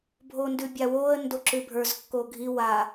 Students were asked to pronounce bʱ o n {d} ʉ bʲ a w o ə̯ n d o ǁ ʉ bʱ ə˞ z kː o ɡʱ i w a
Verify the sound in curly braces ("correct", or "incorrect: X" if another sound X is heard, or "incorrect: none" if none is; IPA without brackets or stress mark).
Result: correct